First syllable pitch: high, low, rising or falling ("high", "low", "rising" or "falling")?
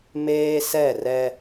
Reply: high